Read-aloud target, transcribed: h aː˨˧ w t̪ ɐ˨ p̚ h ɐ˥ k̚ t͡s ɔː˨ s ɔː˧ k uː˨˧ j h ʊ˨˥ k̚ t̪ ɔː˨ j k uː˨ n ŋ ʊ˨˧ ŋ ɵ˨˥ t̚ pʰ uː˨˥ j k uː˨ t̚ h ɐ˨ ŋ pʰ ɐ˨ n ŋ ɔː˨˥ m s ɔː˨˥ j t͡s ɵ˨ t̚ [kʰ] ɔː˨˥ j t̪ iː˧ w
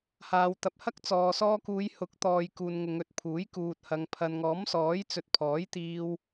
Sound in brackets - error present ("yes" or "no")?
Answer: yes